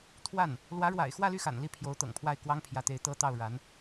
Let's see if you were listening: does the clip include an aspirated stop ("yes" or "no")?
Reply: yes